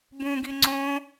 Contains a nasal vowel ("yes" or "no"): yes